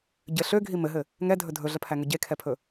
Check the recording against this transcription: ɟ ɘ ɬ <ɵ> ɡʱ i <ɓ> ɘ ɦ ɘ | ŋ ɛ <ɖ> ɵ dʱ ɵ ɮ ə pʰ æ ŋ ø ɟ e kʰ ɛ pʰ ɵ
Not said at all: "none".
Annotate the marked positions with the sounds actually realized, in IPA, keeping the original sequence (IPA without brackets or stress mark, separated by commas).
ø, m, dʱ